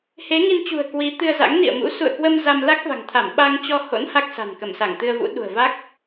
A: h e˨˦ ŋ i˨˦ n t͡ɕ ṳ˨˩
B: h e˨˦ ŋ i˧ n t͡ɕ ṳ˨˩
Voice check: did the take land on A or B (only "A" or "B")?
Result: B